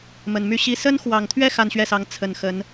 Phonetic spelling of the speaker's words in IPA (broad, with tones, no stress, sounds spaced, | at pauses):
m ə˨˩ n m y˥˩ ɕ i˥ s ə˥ n x w ɑ˨˩ ŋ t̪ʰ ɥ ɛ˥˧ x a˥˧ n ɕ ɥ ɛ˥˩ s ɑ˧˥ ŋ t͡sʰ ə˨˩ n x ə˧˥ n